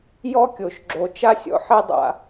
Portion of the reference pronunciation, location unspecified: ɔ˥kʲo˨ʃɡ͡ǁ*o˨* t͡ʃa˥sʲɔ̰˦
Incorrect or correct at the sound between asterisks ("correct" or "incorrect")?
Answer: correct